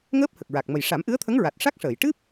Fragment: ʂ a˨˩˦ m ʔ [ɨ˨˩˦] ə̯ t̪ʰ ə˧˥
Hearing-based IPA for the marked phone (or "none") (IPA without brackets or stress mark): ɨ˧˥